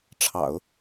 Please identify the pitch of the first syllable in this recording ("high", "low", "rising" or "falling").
low